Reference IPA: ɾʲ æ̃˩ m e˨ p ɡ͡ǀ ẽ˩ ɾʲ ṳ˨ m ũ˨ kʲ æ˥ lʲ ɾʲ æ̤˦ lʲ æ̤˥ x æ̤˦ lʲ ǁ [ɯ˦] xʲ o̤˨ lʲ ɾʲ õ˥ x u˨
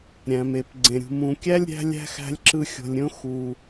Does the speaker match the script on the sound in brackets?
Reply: yes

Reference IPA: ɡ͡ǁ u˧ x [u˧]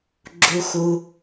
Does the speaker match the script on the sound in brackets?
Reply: yes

